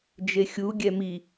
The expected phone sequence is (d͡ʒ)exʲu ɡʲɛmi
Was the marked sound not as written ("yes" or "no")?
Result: no